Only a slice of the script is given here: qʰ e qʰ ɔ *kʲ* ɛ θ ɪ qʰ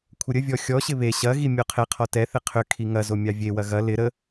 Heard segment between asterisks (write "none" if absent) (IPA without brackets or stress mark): t